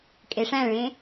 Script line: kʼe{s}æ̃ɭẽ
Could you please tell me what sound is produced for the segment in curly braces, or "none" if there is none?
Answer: ʂ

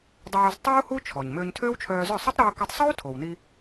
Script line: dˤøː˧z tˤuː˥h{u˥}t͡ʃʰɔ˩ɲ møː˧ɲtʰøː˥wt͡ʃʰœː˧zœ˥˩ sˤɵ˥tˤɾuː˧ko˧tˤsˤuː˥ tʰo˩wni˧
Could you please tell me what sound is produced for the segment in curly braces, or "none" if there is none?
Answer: u˥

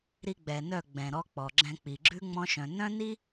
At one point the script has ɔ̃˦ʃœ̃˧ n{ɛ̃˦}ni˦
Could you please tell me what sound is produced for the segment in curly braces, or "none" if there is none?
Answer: œ̃˦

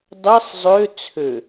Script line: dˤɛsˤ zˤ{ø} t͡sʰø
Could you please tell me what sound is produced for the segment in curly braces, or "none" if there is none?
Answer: ø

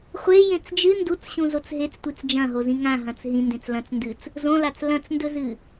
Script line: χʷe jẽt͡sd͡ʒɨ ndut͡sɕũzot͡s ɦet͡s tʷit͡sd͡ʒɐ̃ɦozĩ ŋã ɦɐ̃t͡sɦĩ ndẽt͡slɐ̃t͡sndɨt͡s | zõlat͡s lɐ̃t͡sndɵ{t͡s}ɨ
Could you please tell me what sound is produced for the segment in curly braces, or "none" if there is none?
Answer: z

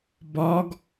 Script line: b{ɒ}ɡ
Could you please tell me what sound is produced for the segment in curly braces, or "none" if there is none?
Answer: ɒ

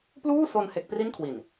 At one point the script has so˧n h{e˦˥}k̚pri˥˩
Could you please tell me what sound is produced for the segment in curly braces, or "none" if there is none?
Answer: e˦˥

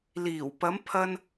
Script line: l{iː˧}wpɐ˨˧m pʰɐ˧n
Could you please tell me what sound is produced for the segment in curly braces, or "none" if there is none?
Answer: iː˨˩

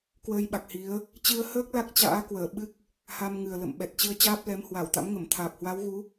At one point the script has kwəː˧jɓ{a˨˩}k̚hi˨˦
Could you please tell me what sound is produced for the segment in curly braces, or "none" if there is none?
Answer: a˨˩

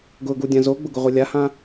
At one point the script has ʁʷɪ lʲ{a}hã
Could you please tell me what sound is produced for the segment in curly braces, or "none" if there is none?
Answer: a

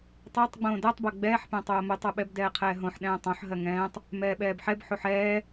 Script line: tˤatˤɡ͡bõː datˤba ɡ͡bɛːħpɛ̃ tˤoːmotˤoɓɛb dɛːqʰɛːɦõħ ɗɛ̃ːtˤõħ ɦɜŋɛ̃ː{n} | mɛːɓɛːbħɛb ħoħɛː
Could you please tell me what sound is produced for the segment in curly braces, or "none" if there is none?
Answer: tˤ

